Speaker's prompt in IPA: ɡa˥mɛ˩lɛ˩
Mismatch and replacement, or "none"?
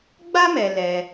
ɡ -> ɡ͡b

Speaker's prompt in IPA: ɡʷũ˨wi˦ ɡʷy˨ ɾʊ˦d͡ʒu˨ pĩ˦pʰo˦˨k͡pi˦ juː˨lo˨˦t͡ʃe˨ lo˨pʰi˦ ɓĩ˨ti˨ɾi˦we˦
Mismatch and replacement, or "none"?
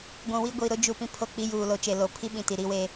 y˨ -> i˨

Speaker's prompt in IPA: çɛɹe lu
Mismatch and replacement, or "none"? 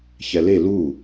ɹ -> l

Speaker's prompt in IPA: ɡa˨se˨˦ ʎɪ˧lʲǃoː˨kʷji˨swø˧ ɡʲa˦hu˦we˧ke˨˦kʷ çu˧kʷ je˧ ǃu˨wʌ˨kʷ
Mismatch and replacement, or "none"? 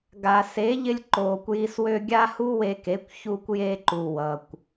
none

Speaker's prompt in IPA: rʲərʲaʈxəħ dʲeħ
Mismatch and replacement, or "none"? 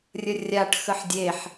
none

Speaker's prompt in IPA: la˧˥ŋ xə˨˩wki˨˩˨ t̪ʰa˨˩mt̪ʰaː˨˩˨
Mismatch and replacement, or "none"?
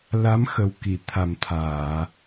ŋ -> m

